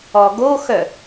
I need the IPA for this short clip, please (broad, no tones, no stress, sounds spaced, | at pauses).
ɔ ɡ o x œ